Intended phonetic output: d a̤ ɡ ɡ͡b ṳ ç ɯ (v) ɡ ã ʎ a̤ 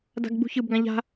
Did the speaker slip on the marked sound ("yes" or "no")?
yes